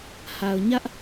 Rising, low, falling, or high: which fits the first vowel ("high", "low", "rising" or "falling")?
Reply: low